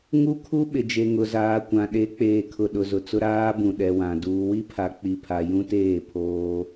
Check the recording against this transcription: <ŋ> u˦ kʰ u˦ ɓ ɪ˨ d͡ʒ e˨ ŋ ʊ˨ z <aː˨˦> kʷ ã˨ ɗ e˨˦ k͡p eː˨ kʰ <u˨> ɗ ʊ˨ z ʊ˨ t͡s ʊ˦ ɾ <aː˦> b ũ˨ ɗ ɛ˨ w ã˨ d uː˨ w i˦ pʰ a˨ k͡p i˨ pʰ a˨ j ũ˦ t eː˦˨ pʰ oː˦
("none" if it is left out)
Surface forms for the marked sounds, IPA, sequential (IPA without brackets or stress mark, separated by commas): ŋ, aː˨, ʊ˨, aː˦